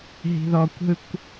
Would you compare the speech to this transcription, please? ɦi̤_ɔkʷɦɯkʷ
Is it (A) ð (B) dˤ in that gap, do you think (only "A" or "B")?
A